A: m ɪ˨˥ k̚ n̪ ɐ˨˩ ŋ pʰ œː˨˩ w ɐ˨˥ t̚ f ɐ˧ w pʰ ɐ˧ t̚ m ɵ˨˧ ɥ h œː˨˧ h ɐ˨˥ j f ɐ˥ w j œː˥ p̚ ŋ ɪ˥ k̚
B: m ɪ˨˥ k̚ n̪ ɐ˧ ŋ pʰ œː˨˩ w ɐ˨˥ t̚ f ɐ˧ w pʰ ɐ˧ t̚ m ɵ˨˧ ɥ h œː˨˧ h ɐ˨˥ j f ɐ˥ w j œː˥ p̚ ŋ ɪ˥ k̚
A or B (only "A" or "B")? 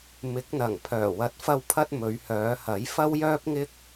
A